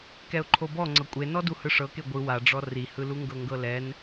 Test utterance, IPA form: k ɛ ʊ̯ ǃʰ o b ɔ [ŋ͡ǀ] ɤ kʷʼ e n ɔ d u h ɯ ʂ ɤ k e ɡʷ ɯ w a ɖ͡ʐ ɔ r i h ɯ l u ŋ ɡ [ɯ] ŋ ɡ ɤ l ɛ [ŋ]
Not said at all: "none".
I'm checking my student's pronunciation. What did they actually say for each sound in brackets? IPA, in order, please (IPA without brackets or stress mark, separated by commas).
ŋ͡ǀ, ɤ, n